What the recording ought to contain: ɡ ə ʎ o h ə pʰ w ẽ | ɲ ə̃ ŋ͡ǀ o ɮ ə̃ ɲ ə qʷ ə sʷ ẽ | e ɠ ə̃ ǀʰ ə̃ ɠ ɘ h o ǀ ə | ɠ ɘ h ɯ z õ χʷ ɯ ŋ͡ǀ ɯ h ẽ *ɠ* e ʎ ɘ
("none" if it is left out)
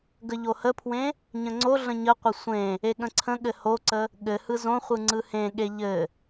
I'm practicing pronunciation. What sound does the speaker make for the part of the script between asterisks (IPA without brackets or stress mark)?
ɠ